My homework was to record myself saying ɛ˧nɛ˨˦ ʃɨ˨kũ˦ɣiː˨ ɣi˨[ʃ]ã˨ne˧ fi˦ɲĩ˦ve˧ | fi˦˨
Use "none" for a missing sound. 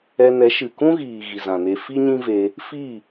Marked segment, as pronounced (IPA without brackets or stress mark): z